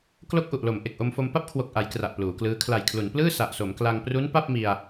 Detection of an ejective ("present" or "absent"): absent